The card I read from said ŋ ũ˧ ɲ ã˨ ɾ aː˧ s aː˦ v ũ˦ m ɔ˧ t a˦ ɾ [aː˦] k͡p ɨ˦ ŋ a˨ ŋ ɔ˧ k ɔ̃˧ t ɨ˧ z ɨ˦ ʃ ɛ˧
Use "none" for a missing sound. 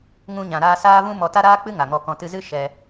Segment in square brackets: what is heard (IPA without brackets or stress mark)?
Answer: aː˦